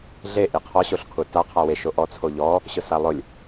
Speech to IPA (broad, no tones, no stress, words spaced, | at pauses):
ɮe ʔiqʰɔ ɕoɬkʰʊ ta qʰawe ʃoʔɔ t͡sʰoʎɔ | ɕʊsalˠʊlʲ